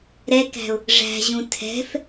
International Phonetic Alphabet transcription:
ɾɛkæ̤ʊ̯ | ʐæ̤ʑũ tʰɛ̤f

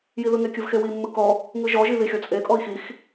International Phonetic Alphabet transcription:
jiðɯŋe kʲɯvxewi mːɯkɔ | ŋɯʒɔʒi ðixʲɔt͡sʼe kʼɔi̯xix

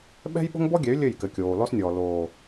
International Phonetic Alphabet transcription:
ɓɛ̤˦jɓo̤˦ŋbɔ˦ɡʲɛ˨˦y̯ lʲɘ˦˨jkɘ˨kʲoː˨ lɔ˦snʲɔː˨ loː˨

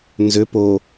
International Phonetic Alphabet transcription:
nzʏ po

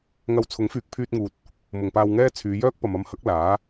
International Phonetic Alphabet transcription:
ŋɐ˧w t͡sʰʊ˨˥ŋfyː˨k̚pʰyː˧t̚ŋuː˨t̚ | mʊ˨ŋpaː˧wŋɛː˥ t͡sʰyː˨˧jœː˥k̚pɐ˨m ɐ˧mhɐ˨˥k̚ laː˨˥

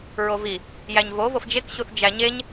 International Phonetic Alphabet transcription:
ɹovi | jæɲvo vofd͡ʒek ɕuθd͡ʒæɲeɲ

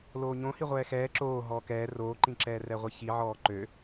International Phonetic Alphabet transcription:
loːɲõ hiʁʷɛːxɛː ǁoː ɦɔːkɛː roːǃĩǁɛː rɛʁʷiçi ʕɔːǃø

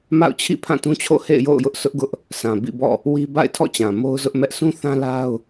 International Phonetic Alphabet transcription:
ma̰˦˨ʊ̯t͡ɕʰḭ˦˨ pʰã˦˨tũ˦t͡ɕʰo̰˦˨hḛ˦˨ɪ̯ jo̰˦˨ʊ̯ jʊ˦ʔsʰʊ˦ʔɡʊ˦ʔ | sʰã˨ bḭ˦˨bɔ̰˦˨ | wi˦ ba̰˦˨ɪ̯tʰɔ̰˦˨t͡ɕã˨ mo˦ʊ̯zʊ˦ʔmɛ˦ʔ sʰũ˦θã˦la˦ʊ̯

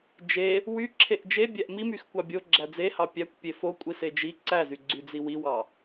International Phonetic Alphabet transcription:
d͡ʒe | wy ǁʰeʔd͡ʒe bʲæʔmimyx kʷɑbʲo ɡ͡ǁæd͡zehɑ pʲækʷpʲe fo kʷʼised͡ʒi ǀæzyɡ͡ǀyd͡zi wiwɑ

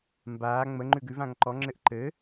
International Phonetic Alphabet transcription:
mbaː ŋ͡mə ŋ͡ǃʉɡʉvãŋ ǃɔŋ͡ǁɘʔ ǃɘ

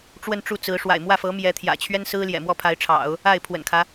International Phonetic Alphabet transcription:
ʈ͡ʂwə˥˧nʈ͡ʂu˥˩t͡sɹ̩˧˥ ʂwa̰˨˩ɪ̯mwä˥˩fɤ˧˥ mjɛ˧˥t̪ʰjä̰˨˩ t͡ɕʰɥɛ˥nsɹ̩˥ ljɛ̰˨˩mwɔ˥˩pʰa˧˥ɪ̯ʈ͡ʂʰɑ̰˨˩˦ʊ̯ | a˥˩ɪ̯pʰwə̰˨˩nkʰä˦

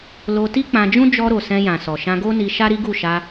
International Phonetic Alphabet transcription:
lo˧ti˦ k͡pã˧d͡ʒũ˦ d͡ʒɔ˧ɾo˨ sɛ̃˧jã˨ sɔ˨ʃã˧ɡo˦ni˧ ʃa˦ɾi˦ɡu˦˨ʃa˧

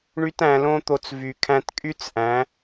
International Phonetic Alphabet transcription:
ɳy˦tæ̃˧lõ˦t̪o˧t͡s vy˨ kʰæ̃˧tkʼy˦t͡sʔæ̃˨˦

